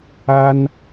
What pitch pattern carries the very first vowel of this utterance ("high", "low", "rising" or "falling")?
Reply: high